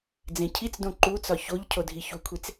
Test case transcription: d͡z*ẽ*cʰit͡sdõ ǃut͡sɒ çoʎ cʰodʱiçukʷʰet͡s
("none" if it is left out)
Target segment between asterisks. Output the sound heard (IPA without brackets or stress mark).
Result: ẽ